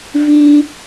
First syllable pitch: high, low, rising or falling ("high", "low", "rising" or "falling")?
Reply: high